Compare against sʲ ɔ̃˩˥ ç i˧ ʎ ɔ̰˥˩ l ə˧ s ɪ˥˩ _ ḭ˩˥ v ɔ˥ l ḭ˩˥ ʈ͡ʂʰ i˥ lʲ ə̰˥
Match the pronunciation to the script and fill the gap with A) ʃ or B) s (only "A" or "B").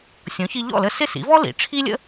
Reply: B